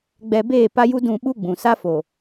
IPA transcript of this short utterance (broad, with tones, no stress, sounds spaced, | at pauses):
ɡ͡b ɛ˨ b eː˦˨ p a˦ j u˦ d ũ˦˨ ɓ u˦ ɡ͡b ũ˨ s a˦ f o˨